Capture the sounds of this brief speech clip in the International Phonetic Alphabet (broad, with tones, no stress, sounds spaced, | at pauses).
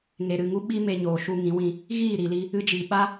ŋ e˨ ɾ ɨ˦˨ ŋ u˦ ɓ i˦ m e˧ ɲ oː˨ ʃ u˧ ŋ ĩ˨˦ w ĩ˧ | ɣ iː˦˨ ɾ i˨ l i˧ | ɨ˧ d͡ʒ i˨ ɓ a˦